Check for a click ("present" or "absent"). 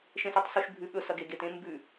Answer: absent